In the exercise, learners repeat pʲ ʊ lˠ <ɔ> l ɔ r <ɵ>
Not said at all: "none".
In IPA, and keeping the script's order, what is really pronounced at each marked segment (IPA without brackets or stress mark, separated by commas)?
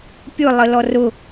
ə, ʊ